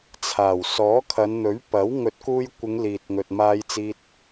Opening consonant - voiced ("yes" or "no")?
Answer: no